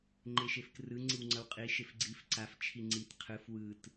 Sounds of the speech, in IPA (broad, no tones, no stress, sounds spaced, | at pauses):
ŋ͡ǃ e ʃ e f k r ɯ ŋ͡ǀ i w ŋ͡ǀ ʌ w qʼ i ʃ e f ɡ͡ǀ i f ǀ a f t͡ʃʰ i ŋ͡ǀ i t qʰ ɯ f w ɯ t